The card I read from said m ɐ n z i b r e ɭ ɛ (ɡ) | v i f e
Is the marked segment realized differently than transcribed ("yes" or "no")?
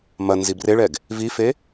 no